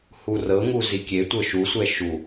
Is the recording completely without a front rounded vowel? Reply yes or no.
yes